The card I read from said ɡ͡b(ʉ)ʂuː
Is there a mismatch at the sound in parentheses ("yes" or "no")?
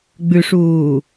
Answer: no